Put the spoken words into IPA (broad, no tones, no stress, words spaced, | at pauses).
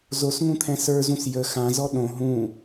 zosŋũt̪ʰɛ̃ sə˞zũs jə xãzɔ ɗõ ɦũ